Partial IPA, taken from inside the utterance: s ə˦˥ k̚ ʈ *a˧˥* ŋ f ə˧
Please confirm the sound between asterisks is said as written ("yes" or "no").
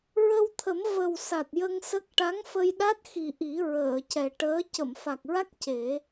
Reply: yes